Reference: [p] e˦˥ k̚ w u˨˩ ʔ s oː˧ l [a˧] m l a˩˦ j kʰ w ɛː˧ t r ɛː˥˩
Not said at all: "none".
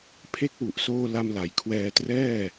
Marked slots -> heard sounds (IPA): pʰ, a˧

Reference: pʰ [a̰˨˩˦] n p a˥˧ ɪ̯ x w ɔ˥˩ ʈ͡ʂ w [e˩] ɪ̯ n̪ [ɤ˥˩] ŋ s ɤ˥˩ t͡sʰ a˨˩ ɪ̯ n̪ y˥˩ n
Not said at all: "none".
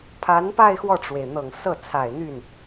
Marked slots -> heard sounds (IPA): a˧˥, e˩, ɤ˨˩

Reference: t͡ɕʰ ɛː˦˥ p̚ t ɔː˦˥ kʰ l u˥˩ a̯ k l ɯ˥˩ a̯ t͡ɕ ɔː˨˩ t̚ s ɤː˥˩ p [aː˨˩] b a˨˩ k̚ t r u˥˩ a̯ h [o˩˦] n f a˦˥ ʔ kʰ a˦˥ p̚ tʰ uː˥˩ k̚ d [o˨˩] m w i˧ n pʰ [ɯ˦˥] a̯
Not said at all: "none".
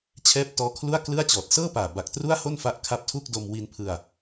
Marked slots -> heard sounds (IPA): aː˨˩, o˥˩, o˧, ɯ˧

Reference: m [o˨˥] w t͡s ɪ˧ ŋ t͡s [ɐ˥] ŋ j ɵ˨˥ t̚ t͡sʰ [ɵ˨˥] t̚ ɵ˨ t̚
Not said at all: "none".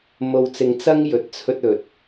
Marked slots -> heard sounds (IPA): o˧, ɐ˥, ɵ˧

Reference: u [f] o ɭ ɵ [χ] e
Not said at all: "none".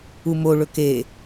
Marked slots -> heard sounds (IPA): m, k

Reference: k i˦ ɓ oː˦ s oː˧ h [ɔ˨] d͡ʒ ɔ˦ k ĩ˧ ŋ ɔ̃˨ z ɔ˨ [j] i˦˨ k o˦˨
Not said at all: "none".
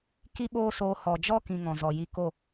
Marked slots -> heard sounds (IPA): ɔ˨, j

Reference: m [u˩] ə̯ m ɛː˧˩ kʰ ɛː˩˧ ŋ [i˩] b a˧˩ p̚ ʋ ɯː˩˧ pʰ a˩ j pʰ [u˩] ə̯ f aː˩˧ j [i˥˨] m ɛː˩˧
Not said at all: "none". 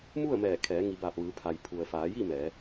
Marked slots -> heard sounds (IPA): u˥˨, i˩˧, u˩, i˥˨

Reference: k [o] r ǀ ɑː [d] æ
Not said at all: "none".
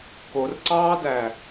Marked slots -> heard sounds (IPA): o, d

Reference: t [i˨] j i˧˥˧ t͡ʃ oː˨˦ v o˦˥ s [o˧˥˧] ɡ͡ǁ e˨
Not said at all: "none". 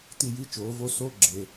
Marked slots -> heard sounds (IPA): i˦˨, o˧˥˧

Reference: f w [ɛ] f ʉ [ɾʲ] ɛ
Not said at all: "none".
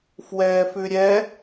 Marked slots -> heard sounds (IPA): ɛː, ɾʲ

